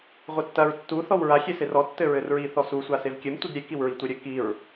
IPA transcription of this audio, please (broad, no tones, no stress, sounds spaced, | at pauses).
ʁʷ ɘ tː ɐ ɹ tː u θ ɔ w ɹ a xʲ e s e r ɔ tː ɘ ɹ ɘ r ɹ i θ ɔ s u sʷ a s e v kʲ ɘ m tʷ i d ɾʲ e k i w ɹ i tʷ ɘ ɾʲ ɘ k i ɹ